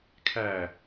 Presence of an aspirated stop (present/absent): present